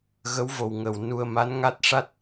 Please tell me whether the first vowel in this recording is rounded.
no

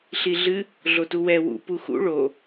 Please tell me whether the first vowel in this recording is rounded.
no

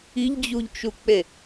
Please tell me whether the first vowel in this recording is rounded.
no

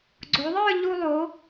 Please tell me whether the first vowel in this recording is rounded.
yes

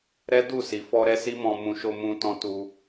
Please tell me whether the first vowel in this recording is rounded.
no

